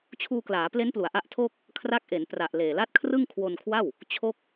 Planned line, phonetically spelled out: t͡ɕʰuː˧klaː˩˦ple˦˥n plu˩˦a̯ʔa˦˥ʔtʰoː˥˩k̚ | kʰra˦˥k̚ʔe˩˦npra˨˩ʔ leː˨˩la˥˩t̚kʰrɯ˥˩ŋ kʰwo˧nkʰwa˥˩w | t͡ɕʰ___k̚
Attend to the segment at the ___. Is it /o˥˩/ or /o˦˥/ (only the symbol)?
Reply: o˦˥